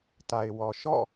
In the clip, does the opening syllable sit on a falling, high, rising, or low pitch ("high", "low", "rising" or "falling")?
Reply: low